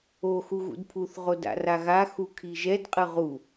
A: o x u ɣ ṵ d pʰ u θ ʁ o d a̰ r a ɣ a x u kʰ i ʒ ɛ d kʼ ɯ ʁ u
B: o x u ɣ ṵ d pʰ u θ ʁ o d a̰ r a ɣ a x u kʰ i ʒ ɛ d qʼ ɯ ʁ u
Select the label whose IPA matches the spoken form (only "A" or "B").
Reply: B